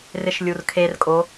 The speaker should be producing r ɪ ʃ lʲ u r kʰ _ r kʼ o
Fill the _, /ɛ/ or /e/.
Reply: e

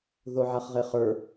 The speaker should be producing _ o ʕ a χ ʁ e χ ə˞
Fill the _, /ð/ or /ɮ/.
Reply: ð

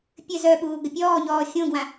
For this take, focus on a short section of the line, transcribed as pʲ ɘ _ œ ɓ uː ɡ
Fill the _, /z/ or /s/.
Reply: z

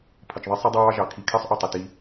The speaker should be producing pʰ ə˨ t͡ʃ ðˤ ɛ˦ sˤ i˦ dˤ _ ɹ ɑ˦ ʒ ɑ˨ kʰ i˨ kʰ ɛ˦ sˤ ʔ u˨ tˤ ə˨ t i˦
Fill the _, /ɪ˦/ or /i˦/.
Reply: ɪ˦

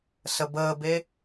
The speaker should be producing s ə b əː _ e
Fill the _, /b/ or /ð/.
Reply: b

